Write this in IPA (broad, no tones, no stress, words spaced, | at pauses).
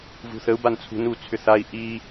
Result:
vṳθəu̯ bant͡sʰṳn ut͡sʰʏθai̯ ʔi